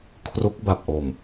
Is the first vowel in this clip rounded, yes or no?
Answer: yes